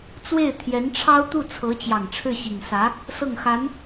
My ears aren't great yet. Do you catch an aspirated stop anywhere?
yes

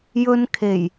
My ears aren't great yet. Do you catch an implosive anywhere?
no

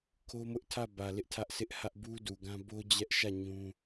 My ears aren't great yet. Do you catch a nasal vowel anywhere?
yes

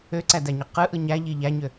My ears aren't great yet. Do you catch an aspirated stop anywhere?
no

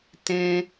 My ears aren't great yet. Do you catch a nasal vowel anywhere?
yes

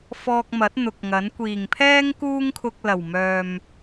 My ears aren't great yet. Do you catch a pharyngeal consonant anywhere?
no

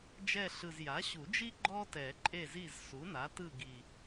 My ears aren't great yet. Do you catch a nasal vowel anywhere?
no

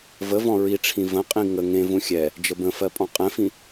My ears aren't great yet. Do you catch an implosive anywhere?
no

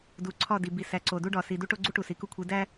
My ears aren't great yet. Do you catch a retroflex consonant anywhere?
yes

